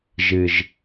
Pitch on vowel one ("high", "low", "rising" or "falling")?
low